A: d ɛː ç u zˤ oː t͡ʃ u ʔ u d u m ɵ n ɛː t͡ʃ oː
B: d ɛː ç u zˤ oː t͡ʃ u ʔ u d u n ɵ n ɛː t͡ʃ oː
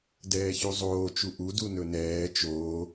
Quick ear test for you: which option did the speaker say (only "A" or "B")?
B